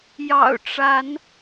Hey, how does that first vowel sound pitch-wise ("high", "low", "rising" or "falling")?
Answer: low